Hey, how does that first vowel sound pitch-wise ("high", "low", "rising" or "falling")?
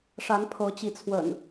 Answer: rising